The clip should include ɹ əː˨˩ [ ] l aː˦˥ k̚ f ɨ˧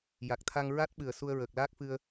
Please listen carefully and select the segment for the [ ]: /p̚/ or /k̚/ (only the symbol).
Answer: k̚